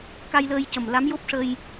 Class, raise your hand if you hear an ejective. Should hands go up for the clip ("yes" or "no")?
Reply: no